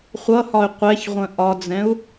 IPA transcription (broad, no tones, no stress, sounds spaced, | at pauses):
χʷ ʌ h ɒ y̯ qʷ ɛ ç ʁʷ ə̃ ʔ ɒ d͡z ɛ̃ u̯